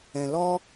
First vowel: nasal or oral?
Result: nasal